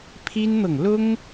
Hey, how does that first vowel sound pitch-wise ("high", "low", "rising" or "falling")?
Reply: high